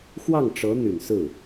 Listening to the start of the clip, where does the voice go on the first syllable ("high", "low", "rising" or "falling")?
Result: falling